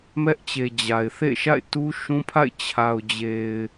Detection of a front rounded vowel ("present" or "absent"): absent